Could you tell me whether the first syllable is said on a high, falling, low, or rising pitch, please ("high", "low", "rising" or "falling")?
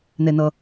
low